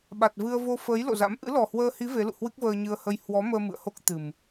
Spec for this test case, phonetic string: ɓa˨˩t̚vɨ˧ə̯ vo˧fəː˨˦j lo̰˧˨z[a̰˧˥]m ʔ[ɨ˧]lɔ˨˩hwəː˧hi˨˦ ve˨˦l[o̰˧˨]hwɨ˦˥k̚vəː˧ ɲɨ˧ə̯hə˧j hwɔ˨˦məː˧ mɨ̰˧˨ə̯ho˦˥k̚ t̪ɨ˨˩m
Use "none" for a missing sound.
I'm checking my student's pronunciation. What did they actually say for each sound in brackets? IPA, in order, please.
a̰˧˥, ɨ̰˧˥, ṵ˧˨

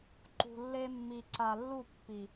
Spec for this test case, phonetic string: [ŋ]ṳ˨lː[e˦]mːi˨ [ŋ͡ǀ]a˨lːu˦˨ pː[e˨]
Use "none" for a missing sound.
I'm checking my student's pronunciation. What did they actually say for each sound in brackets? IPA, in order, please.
ǃ, e˦, ǀ, i˨

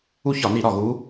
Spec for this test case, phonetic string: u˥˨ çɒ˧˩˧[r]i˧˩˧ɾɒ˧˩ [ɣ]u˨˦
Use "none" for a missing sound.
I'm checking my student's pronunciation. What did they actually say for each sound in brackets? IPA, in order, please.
n, ɣ

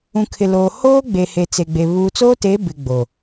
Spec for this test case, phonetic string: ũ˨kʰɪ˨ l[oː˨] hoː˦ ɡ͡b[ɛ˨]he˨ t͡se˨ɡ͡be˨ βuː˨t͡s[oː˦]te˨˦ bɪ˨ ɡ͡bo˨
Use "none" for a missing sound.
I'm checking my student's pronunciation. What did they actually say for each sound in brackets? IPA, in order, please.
oː˨, e˨, oː˦

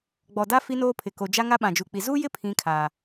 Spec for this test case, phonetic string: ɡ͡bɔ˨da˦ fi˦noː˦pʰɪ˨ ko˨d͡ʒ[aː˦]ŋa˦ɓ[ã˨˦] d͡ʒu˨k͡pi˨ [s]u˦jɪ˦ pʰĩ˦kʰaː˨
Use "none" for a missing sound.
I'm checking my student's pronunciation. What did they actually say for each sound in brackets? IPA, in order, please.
a˦, ã˨, z

